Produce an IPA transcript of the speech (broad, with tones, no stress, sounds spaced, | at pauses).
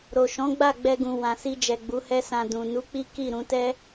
ɾ o˨ ʃ ɔ̃˨˦ ɡ͡b a˦˨ ɡ͡b ɛ˧ ɡ ũ˨ w ã˨ s i˧ d͡ʒ ɛ˨ ɡ͡b u˨˦ h ɛ˦ s ã˧ d ũ˨ n u˨˦ k͡p i˦ k i˦˨ ɾ ũ˧ t ɛ˦